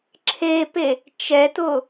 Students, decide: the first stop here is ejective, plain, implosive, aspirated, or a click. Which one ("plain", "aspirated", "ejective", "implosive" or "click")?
click